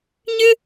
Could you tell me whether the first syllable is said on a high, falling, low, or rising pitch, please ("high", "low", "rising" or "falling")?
high